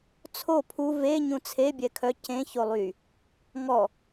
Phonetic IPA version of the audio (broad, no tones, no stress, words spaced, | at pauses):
t͡sʰo pʰu ve ɲũt͡sʰe bʲɛkʰœ cẽ çolˠy | ŋɔ